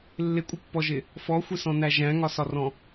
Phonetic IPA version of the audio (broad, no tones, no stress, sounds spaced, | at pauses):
lː ɪ kʷʼ ʌ pː ɔ ʒ ɪ | f ɔ xʷ ɪ s ɔ̃ n æ ʒ æ̃ ŋ ɒ s ɒ r ɔ̃